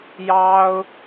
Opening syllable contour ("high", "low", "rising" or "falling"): high